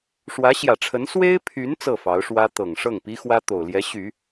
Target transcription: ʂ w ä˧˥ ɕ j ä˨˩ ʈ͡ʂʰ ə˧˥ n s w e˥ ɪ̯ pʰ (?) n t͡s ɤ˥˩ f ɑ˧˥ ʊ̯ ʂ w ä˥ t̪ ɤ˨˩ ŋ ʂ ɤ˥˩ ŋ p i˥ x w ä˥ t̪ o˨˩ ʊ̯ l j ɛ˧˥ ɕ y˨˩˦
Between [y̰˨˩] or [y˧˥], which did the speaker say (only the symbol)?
y˧˥